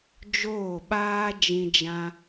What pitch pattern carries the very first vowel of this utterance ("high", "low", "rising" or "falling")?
falling